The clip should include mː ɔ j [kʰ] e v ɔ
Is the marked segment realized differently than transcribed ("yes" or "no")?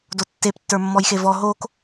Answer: yes